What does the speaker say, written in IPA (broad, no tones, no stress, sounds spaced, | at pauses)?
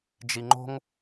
d͡ʒ i ŋ͡ǃ o̤ ŋ